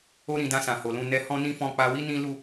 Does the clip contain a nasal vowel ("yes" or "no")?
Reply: yes